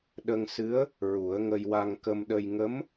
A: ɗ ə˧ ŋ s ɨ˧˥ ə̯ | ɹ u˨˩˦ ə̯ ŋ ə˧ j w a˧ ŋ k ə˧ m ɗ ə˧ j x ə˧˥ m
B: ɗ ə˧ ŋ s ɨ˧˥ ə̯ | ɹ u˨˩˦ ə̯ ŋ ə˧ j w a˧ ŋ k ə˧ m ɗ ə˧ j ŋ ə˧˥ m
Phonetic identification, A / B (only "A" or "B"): B